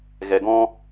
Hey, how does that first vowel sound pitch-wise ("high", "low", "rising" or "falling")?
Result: low